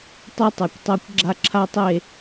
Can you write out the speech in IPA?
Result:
tˤi˦tˤœ˨kʷtˤɛ˦kʷ ɡ͡ǁa˦ǁʰa˦tˤe˦˨

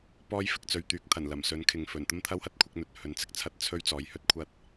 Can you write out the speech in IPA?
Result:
pɔː˥jfɪ˨k̚t͡sɵ˨ɥt̪yː˨˥k̚ t̪ʰɐ˨˩n lɐ˨˩m sɵ˨˥nkʰɪ˨ŋfɵ˨˩n t̪ɐ˥mt̪ʰɐ˥whɐ˥t̚ kʷʰɪ˨˥k̚ n̪ɵ˨t̚hɵ˨˧nt͡sɪ˨k̚t͡sʰɐ˥t̚ t͡sʰɵ˥ɥ t͡sɔː˨˥jhɵ˥t̚kʷʰɐ˥t̚

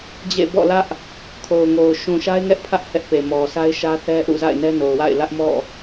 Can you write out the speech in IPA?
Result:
d͡ʑḛ˦˨ bɔ̰˦˨lä˦ʔ | kʰo˨ʊ̯ŋo˨ʊ̯ ʃũ˨ʃa˦ɪ̯ŋɛ˦ʔpʰä˦ʔ hɛ˦ʔpe˨mɔ˨ sa˦ɪ̯ʃä˦θɛ˦ ʔṵ˦˨za̰˦˨ɪ̯ nɛ˦no˨ʊ̯wa̰˦˨ɪ̯ lä˦ʔmɔ̰˦˨

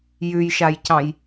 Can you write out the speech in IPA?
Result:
jʉjʃajcɑ̃j

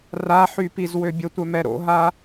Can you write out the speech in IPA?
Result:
raħy pizwøbʲətʷœ mɛɾo̰ɦa

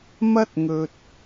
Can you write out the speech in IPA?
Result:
mɐ˥t̚ ŋɵ˨t̚

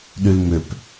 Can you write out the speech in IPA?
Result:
ɗylmʏp

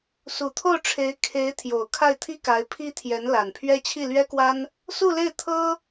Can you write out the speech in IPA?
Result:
su˨˩t̪ʰo˥˩ʊ̯ʈ͡ʂʰe˧˥ɪ̯ kʰe˧˥ɪ̯ t̪ʰjo˨˩ʊ̯ kʰa˥˩ɪ̯t̪ʰi˥ka˧˥ɪ̯ pʰi˥t̪ʰjɛ˧˥n la˨˩npʰɥɛ˥ t͡ɕʰi˥˩lɥɛ˥kwa˥n | su˥˧le˥˩ɪ̯ t̪ʰɤ˥

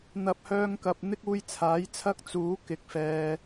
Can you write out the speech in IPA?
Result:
n̪ɐ˨˥p̚hœː˧ŋkɐ˨p̚ n̪ɪ˥k̚uː˧jt͡sʰaː˨˥jt͡sʰɐ˥k̚ t͡suː˨˥ kɪ˨˥k̚fɛː˧

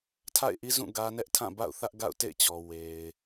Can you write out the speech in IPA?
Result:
tʰa̰˦˨ɪ̯ʔi˦zũ˦˨ ɡä˦ nɛ˦ʔtʰã˦˨ba̰˦˨ʊ̯θä˦ʔ ɡa̰˦˨ʊ̯tḛ˦˨ɪ̯t͡ɕɔ˨ we˨ɪ̯

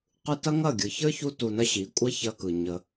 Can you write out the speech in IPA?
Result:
qɯ˧ tɐ˦ŋɐ˦˨ɡʲɯ˨ çə˞˦çu˧tu˨nɐ˧ ɕi˨˦kʷʼɐ˦çɐ˧kɯ˨ ɲə˧

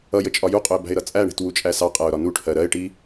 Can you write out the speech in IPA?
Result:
ʌjə t͡ʃʼɒjuqʼʊɪ̯ bæ̤ɪ̯ɾʌt͡sʼæɳi̤t wut͡ʃʼæsɑqʼæʊ̯ ɾɒnuʈʰɜ ɾɜɪ̯ʈi

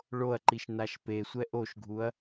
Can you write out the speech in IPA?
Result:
ɭoɐ̯ǃiʃ naʃpesʷɛ ʔoʃɡʱuɐ̯

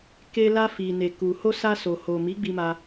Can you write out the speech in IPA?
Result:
ke˧la˧fi˨ ne˨ku˨ ho˧sa˧so˨ ho˨ mi˨˦ɡ͡bi˧ma˧

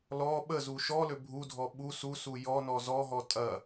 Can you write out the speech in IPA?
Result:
lɔ ɓəzu ʃɔlø bʱudʱɔ ɓu susu jɔnɔ zɔɦɔ tʼɐ

